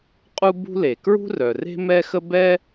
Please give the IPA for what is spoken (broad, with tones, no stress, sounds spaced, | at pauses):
qʼ u˥ b ṳ˥ l e˩ k ɹ ṳ˥ r œ˩ r e̤˥ m ɛ˥ x ə˥ b ɛ˥